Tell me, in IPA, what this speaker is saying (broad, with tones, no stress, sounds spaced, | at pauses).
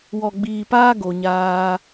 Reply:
w ɔ˨ ɡ͡b iː˨ p aː˦ ɡ o˨ ɲ aː˧